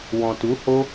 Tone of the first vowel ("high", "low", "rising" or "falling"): low